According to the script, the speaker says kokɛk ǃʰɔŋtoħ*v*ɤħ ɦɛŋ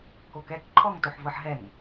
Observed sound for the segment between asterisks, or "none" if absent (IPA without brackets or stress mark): v